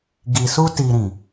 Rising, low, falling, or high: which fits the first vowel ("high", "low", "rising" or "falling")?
low